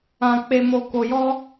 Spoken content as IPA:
ã˧ k͡p e˧ m o˧ k o˧ j ɔ˦

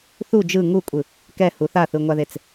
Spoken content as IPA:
θ u d͡ʒ ɯ ŋ u kʷʼ ɯ | k ɛ h u θ a θ ɯ ŋʷ a ð e t͡s

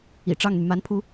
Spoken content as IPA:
ḭ˨˩ ʈ͡ʂ ɑ˥˩ ŋ n̪ y˩ m a˧˥ n pʰ u˧˥

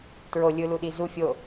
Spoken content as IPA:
t ɹ o lʲ ɯ l u ɗ i z u fʲ o

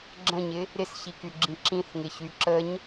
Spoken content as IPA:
ɡ͡ǁ ə̃ ɲ ɪ | ɾ ɪ s ç i k y ɡ͡ǁ ĩ ǁ ĩ θ ŋ ɪ ç y ǁ ə ɲ

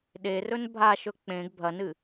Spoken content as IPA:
ɗ e r ɵ n bʱ a ʃ ɵ k͡p ẽ ɡ bʱ ɐ n ɨ

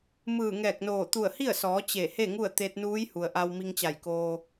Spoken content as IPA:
m ɯː˧˩ ŋ ɛː˧˩ k̚ n oː˧˩ t̪ u˧˩ ə̯ h i˥˨ ə̯ s ɔː˩˧ t͡ɕ e˧˩ h e˥˨ ŋ u˥˨ ə̯ t̪ e˧ t̚ n uː˧˥ j h u˩ ə̯ ʔ a˧ w m i˧ ŋ t͡ɕ a˧˩ j k oː˧

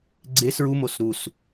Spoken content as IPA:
ɡ͡ǀ e s ɹ u m o s ɾ u s

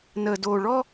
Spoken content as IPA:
n əː˨ d oː˨ ɭ ɔ˦

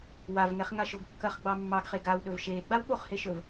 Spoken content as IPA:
w a v ŋ ɛ χ ŋ a ʃ o ɡ kː ɐ χ ɡ͡b ɑ mː ɑ ɡ χ e ɡ a w ɗ ɵ v ʃ eː ɡ͡b a w ɓ o χ h e ʃ ɵ v

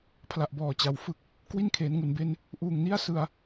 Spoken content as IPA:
pʰ l a˨˩ ʔ b ɔː˨˩ t͡ɕ a˩˦ w f ɯ˥˩ k̚ | k w i˥˩ n kʰ eː˩˦ n ŋ u˩˦ n b e˦˥ n | ʔ uː˨˩ ŋ n i˥˩ a̯ s ɯ˧ a̯

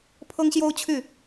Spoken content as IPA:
pʰ ɤ˥ ŋ ɕ j o˥ ʊ̯ t͡ɕʰ y˥˩

